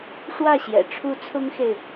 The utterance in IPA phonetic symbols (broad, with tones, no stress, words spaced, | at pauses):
ʂwä˥˨ɕjɛ̰˨˩ ʈ͡ʂʰu˨˦ t͡sʰʊ˦ŋxe˨ɪ̯